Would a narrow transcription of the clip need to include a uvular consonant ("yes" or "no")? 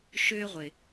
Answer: yes